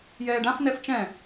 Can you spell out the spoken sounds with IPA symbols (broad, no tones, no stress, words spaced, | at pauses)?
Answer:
jɛːɖãf nɛft͡ʃɛ̃